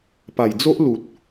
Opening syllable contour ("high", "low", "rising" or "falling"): low